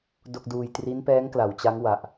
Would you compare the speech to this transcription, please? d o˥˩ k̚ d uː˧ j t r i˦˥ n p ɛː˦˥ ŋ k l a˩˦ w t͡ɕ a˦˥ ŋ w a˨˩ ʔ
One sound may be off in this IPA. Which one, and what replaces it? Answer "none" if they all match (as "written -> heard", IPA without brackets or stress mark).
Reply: none